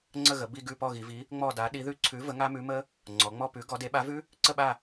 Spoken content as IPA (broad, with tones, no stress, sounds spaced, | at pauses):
ŋ͡ǀ ə˦˨ ɣ ə˩˧ b i˦˨ ɡ ʉ˦˨ p ɔ˦˨ ɣ i˩˧ v i˨˥ | ŋ͡m ɔ˦˨ d a˨˥ ɗ i˨˥ ð ʉ˦˨ ǀʰ ʉ˨˥ v ə˨˥ ŋ a˦˥ m ʉ˨˥ m ə˦˥ | ŋ͡ǀ ɔ˩˧ ŋ͡m ɔ˦˨ p ʉ˨˥ ɡ ɔ˨˥ d e˨˥ ɓ a˨˥ v ʉ˦˥ | ǀ ə˦˨ ɓ a˦˨